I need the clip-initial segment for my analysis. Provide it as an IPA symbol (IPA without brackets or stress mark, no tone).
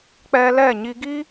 k͡p